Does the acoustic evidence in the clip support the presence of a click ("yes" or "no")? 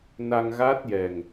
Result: no